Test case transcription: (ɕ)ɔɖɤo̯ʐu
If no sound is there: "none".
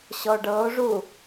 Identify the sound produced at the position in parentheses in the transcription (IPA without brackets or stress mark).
ɕ